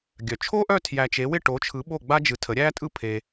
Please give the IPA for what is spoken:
ɡʲ œ˩ t͡ʃʰ o˥ ʔ œ˥˨ tʰ j æ˧ t͡ʃ e˨˥ w ɪ˥˨ ʈ o˨˥ t͡ʃʰ ɯ˨˥ ɓ o˥˨ ɡ͡b a˥ d͡ʒ ɯ˧ tʰ ə˨˥ ɾʲ æ˥ tʼ ɯ˥ pʰ e˧

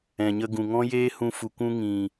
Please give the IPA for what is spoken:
ɛ̃˨ ɲ ə˧ ɡ ũ˨ ŋ ɔ̃˦ j eː˦ h ũ˧ f u˨ kʷ ũ˧ ŋ ĩ˨

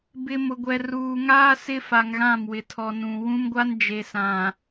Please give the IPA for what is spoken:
b ɪ˨ m ʊ˨ ɡʷ ɛ˨ r uː˨ ŋ aː˦ s ɪ˦ f a˨ ŋ ɣ ã˦˨ m w ɪ˨ tʰ ɔ˨ n ũ˨ w ũ˦ m ɡʷ a˦ n d͡ʒ e˨ s ã˨

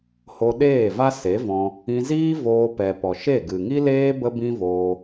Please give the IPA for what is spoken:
h o˧ ɗ eː˦˨ v a˦ s e˨˦ v ɔ̃˧ | ĩ˧ z iː˦ v oː˧ p ɛ˨ p ɔ˨ ʃ e˦˨ ɡ ɨ˨ ŋ i˦ l eː˦ b ə˦ b ĩ˦ v oː˧

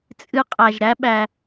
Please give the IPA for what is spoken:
t͡sʼ ɨ˨ qʼ æ˩ ʒ ɾ æ˦ ɓ æ˨

